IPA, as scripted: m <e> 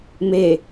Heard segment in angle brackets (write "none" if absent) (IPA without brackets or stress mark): e